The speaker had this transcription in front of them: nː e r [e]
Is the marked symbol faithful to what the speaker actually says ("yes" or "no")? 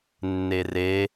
yes